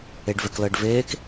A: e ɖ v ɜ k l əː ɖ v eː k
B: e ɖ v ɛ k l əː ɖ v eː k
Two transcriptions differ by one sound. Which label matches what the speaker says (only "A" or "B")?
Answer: B